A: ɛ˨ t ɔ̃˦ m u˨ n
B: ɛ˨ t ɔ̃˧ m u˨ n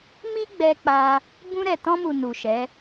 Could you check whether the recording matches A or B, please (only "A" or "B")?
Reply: B